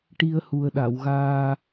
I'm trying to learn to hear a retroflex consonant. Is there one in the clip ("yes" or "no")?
yes